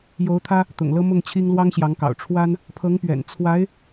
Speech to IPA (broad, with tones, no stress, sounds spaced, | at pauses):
j o˧˥ ʊ̯ t̪ʰ ä˥ | t̪ ʊ̰˨˩ ŋ l ɤ˥ m ʊ˥˩ ŋ t͡ɕʰ i˥ ŋ l w ɑ˥ ŋ ɕ j ɑ˧˥ ŋ k ɑ̰˨˩ ʊ̯ ʈ͡ʂʰ w a˥ n | pʰ ɤ˧˥ ŋ p ɥ ɛ̰˨˩ n t͡sʰ w a˧˥ ɪ̯